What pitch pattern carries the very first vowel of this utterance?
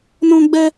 high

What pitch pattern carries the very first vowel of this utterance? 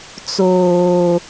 low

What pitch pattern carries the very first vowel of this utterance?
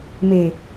low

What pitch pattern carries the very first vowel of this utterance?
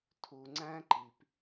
low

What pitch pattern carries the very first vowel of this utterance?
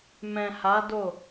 low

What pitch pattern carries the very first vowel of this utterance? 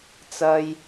high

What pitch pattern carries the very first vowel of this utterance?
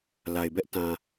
low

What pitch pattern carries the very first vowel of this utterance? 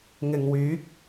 low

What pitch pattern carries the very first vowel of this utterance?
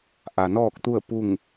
low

